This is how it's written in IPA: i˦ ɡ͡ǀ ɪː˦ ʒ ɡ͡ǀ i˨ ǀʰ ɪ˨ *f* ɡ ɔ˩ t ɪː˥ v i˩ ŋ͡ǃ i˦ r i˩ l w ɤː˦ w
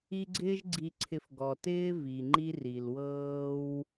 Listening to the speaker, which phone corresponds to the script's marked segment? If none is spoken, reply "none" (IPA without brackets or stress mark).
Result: f